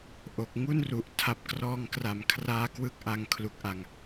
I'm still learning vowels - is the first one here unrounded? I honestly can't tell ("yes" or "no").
no